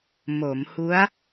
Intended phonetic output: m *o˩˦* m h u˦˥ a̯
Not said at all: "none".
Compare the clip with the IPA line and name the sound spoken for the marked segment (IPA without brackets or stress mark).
o˩˦